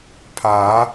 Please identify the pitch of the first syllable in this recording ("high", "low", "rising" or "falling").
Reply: rising